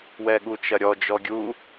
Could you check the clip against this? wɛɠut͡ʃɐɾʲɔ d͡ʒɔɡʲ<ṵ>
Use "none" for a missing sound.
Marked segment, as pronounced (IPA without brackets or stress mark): u